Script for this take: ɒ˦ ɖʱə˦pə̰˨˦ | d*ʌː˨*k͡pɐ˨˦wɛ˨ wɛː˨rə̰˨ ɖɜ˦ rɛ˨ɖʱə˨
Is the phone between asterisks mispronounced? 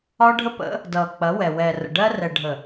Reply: no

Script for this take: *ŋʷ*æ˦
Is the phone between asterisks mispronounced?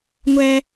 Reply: no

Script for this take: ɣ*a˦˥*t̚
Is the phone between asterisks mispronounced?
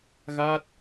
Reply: no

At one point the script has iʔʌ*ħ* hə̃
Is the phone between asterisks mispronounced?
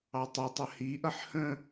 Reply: no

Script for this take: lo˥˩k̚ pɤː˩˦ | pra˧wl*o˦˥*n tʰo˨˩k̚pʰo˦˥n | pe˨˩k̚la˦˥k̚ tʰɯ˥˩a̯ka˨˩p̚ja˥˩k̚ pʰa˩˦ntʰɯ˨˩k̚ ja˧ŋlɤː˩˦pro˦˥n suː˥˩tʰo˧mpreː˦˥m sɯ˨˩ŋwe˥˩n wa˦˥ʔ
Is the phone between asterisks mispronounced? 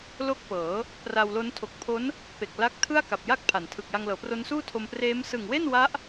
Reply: no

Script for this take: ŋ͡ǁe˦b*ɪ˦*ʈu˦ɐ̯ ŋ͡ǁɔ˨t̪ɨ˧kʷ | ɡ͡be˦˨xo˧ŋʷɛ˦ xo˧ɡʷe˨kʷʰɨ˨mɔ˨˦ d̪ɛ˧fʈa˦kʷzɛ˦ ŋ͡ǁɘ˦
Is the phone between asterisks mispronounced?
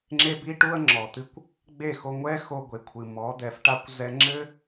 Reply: yes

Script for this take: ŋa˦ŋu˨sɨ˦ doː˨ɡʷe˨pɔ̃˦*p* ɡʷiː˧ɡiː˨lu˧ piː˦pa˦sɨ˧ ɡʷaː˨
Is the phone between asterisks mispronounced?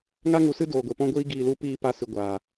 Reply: yes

